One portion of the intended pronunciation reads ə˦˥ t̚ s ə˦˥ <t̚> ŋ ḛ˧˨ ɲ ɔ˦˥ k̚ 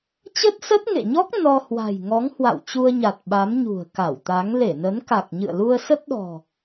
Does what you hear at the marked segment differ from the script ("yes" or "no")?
no